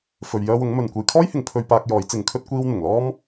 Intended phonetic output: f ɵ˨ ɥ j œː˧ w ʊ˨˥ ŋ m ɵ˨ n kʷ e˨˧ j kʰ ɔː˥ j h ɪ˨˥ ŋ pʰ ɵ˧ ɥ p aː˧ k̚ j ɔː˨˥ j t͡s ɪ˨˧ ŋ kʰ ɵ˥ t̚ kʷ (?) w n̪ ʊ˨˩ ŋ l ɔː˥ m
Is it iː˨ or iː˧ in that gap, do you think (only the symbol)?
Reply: iː˧